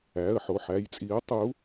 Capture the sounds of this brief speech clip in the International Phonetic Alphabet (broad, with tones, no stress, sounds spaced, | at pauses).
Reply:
æ˩˧˩ ə̯ ħ o˩˧˩ ħ æ˩˧˩ j t͡sʼ i˨˦ ə̯ tˤ u˨˦